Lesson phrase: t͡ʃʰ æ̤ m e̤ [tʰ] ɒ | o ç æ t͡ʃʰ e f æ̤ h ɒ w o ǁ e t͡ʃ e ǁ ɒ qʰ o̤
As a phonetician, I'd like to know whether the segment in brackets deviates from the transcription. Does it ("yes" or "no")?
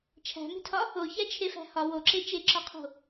no